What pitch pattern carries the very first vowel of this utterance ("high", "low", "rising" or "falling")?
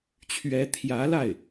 rising